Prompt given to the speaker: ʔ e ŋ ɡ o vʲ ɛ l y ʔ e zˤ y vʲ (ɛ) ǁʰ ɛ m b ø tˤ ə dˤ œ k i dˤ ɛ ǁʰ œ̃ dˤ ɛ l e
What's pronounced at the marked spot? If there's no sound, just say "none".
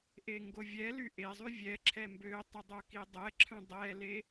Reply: ɛ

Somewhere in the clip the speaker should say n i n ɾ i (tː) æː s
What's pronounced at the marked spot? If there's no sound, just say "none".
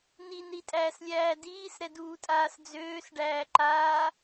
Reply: tʼ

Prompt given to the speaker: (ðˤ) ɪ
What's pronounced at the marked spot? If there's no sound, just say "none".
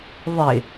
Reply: ðˤ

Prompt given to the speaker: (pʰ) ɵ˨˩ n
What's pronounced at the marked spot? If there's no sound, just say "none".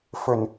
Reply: f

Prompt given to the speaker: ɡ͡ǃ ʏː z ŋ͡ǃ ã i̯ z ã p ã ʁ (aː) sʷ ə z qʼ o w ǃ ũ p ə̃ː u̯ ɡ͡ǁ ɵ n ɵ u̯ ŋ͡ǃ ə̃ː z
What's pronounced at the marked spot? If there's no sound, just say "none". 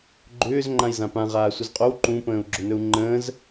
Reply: aː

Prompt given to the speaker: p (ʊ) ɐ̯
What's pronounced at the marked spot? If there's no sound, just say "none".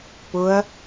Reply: ʊ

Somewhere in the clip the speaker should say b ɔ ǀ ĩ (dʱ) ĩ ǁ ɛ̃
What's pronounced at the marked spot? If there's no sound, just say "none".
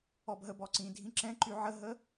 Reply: dʱ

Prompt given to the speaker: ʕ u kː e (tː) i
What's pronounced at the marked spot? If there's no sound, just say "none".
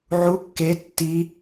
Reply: tː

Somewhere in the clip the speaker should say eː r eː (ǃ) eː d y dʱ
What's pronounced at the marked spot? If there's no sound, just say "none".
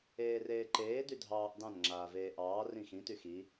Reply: ǃ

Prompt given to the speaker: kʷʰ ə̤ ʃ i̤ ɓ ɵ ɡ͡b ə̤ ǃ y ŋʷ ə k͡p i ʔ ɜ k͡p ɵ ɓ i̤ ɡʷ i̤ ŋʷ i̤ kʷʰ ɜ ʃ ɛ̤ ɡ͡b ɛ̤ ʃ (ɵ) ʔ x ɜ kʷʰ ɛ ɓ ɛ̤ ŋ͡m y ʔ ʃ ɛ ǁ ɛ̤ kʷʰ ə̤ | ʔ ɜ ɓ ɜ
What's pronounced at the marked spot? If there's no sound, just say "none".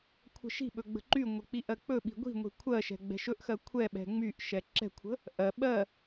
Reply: ɵ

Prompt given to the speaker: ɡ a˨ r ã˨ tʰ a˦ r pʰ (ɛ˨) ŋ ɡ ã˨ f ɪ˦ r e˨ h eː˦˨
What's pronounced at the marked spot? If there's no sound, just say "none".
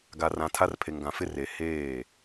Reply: e˨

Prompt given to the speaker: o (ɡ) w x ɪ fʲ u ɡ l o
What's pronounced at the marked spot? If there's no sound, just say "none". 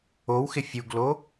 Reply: none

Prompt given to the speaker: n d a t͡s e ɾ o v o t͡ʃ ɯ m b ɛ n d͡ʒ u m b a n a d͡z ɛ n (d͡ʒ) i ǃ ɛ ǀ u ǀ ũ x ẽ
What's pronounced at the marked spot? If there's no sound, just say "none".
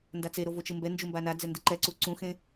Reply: d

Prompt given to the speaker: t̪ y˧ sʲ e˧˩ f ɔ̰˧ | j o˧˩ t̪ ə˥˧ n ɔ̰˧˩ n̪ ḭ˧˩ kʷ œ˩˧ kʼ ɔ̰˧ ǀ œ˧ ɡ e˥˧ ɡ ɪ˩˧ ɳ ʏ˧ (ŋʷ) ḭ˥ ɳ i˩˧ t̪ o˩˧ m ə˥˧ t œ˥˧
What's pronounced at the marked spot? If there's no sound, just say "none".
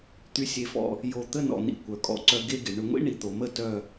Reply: ŋʷ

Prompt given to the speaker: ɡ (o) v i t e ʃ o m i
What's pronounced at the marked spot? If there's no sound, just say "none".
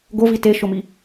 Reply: o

